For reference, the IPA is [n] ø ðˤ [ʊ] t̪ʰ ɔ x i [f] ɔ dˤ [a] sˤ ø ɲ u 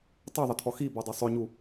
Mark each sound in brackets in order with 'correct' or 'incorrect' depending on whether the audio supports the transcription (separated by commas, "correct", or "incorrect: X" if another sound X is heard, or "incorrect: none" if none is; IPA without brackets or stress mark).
incorrect: tˤ, incorrect: ə, incorrect: b, correct